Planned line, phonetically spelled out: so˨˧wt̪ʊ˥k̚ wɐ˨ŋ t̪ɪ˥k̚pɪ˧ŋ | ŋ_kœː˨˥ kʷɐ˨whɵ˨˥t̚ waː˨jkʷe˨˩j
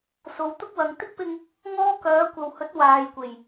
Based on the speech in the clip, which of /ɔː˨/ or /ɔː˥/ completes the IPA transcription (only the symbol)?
ɔː˥